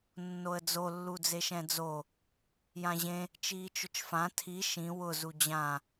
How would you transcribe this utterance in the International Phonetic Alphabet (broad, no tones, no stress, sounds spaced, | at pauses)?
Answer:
nː o ə̯ d͡z o lː u d͡z e ʃ ɛ̃ d͡z o | j ã ʑ ẽ | t͡ʃ iː t͡ʃ ʊ t͡ʃ f ã tʰ i ʃ ĩ w ʊ z u d͡ʑ ã